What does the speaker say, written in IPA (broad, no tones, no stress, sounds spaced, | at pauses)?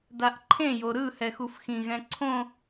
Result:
d a ʔ ǃʰ ẽ j o ɾ ɯ h ɛ x u f x ĩ ɣ ɛ̃ ǀʰ õ